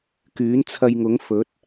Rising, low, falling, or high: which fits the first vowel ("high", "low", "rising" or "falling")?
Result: rising